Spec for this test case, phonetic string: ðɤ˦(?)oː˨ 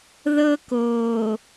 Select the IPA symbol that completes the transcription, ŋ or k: k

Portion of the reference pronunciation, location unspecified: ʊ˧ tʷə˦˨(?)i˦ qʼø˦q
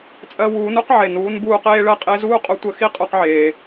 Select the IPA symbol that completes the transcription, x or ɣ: x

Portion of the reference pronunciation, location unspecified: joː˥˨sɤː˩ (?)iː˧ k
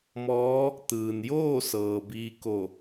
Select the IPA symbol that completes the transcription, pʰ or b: b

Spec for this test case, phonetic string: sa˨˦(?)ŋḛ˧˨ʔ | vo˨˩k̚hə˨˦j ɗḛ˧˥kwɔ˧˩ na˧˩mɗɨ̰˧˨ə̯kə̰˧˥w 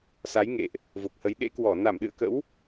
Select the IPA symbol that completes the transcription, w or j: j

